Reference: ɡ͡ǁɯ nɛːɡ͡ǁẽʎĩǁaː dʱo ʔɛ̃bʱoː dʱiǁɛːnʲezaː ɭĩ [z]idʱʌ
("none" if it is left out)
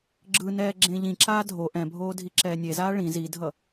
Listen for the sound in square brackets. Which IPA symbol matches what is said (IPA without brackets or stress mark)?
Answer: z